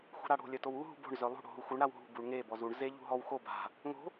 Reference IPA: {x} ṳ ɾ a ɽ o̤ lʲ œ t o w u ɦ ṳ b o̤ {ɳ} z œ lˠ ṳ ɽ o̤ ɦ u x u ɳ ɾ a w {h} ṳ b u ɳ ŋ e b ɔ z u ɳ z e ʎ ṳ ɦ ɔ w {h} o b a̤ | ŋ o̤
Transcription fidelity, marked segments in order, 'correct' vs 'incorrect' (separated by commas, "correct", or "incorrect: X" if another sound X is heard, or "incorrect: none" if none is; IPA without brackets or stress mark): correct, correct, incorrect: ɦ, incorrect: x